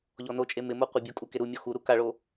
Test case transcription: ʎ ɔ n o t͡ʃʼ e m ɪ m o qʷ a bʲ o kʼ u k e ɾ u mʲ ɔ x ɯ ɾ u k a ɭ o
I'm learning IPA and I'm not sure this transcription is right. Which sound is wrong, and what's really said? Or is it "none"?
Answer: ɯ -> u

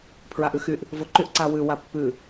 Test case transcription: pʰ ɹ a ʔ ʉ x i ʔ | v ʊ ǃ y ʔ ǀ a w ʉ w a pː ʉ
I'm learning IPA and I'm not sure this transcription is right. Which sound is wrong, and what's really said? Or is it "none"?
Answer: i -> y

